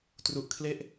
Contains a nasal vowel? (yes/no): no